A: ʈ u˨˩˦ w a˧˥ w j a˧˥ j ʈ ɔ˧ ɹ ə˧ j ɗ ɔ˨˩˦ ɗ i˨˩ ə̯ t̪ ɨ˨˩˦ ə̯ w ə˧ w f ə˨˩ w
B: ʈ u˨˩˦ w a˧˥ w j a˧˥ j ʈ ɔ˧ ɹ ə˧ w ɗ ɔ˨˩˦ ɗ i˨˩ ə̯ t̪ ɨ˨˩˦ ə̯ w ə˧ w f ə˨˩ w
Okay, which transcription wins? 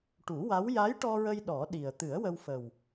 A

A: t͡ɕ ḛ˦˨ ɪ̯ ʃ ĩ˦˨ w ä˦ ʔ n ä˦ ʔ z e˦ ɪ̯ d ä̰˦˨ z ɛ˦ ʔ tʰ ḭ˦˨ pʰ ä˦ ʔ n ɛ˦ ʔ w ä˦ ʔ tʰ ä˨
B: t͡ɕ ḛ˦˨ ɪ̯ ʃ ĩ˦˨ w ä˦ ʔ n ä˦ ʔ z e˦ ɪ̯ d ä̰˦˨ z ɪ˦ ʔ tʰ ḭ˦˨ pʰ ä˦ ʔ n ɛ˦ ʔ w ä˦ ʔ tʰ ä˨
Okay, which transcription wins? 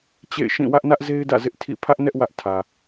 B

